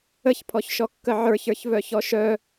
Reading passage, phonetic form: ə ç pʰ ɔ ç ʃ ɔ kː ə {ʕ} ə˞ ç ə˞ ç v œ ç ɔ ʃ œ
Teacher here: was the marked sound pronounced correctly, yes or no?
yes